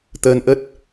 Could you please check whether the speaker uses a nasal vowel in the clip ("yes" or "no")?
no